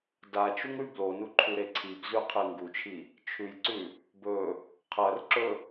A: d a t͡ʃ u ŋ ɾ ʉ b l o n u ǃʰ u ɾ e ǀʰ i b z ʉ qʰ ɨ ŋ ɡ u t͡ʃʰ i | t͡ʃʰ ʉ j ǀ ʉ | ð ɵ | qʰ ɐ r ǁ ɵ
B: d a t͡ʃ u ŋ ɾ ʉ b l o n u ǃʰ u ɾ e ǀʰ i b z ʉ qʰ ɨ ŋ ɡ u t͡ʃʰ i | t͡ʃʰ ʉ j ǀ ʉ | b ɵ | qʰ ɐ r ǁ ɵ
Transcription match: B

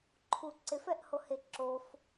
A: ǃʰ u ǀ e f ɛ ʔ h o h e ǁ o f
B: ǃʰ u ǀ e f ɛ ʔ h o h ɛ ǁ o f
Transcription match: A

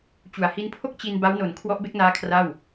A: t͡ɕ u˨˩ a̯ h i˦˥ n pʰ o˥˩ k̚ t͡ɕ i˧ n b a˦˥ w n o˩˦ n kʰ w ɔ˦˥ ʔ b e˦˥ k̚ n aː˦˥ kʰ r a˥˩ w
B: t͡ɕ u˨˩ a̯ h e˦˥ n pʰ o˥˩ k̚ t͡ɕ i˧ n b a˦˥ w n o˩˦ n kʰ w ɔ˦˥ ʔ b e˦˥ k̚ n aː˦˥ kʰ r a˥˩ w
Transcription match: A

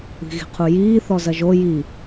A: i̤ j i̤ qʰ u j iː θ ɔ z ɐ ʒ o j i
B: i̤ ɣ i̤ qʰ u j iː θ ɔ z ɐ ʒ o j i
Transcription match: B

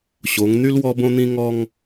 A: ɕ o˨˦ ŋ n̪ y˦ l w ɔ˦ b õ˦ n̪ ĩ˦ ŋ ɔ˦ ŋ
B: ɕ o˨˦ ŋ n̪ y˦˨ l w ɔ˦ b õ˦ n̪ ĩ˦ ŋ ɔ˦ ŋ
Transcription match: A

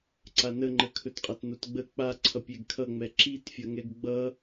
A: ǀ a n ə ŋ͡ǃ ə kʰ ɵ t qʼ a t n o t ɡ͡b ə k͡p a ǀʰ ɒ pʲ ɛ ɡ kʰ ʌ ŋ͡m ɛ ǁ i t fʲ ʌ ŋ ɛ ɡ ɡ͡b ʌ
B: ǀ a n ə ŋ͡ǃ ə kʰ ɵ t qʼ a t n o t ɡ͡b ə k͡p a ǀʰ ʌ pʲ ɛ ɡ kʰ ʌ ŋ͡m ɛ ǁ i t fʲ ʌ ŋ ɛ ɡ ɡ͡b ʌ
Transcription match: B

